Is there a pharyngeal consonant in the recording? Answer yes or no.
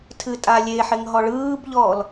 yes